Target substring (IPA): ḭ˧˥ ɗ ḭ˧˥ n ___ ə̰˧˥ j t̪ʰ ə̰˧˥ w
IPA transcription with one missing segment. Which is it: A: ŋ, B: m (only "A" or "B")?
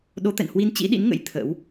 A